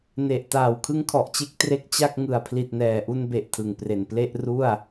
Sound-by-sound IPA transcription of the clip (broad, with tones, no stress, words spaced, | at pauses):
ne˨˩ʔ taː˨˩wkʰɯ˦˥ŋkʰɔ˨˩ʔt͡ɕe˦˥k̚ tre˦˥k̚t͡ɕa˥˩k̚ ŋɯ˨˩a̯pʰli˨˩t̚nɛː˨˩ ʔu˧nbe˨˩ʔ tʰɯ˨˩ŋpre˨˩n ple˥˩ʔru˥˩a̯